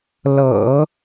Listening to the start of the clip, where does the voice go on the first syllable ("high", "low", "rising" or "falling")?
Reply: low